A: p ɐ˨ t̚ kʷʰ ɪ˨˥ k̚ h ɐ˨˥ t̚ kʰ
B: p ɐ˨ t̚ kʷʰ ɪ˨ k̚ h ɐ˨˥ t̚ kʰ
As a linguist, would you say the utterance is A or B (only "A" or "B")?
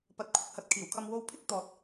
A